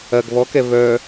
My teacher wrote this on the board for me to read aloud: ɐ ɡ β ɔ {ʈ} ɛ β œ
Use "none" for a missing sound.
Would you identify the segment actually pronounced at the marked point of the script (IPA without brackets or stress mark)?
k